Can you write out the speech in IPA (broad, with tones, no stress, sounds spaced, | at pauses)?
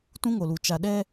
t ũ˦ ŋ o˨ l u˨ t͡ʃ a˨ ɗ ɛ˦